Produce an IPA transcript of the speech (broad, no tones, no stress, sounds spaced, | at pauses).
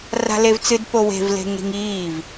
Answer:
r a̤ l e v t͡s ɨ d p o w e̤ v l e̤ ŋ ɾ i̤ ŋ iː v